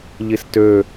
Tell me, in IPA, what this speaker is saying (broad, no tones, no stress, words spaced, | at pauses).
ʎistø